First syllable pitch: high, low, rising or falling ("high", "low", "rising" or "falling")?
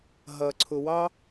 low